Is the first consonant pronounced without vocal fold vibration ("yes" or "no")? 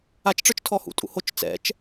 yes